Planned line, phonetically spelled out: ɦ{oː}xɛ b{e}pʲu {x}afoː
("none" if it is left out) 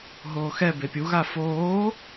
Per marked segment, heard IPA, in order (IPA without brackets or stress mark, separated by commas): oː, e, ɣ